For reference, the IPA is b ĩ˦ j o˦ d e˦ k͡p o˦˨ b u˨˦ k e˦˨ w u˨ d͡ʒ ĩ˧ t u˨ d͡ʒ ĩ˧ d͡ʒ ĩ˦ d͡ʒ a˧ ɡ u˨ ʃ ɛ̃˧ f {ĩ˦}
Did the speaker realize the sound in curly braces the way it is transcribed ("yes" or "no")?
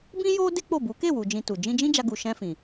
no